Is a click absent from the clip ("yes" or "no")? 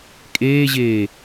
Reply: yes